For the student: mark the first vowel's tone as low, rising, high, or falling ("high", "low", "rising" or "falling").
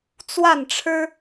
falling